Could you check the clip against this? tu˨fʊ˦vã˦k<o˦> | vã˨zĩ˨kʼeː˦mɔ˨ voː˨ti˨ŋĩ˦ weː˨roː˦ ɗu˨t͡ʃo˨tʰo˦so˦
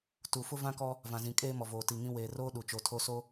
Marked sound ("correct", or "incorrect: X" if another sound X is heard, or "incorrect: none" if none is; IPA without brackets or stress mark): incorrect: ɔ˦